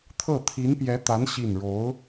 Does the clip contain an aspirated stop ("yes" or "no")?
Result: yes